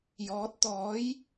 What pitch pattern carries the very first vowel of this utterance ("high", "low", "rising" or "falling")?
rising